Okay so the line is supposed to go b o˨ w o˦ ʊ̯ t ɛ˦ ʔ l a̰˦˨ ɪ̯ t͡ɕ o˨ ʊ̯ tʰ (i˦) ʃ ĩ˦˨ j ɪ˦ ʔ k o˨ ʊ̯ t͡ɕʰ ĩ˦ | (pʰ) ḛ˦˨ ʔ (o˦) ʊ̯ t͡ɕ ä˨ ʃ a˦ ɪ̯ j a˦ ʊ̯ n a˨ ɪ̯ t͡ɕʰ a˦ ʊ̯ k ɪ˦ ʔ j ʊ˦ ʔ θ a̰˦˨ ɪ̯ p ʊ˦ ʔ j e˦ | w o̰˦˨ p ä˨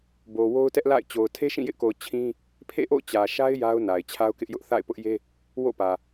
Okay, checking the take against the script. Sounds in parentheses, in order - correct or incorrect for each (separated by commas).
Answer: incorrect, correct, incorrect